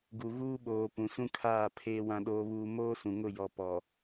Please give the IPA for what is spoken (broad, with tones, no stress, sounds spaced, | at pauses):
ɡ u˨ ɣ uː˦ ɓ oː˨ p ũ˨ s ũ˦ kʰ aː˦˨ pʰ eː˦ w ã˦ ɗ oː˦ β uː˦ m oː˦ s ũ˨ ŋ ʊ˦˨ j ɔ˨ p ɔ˨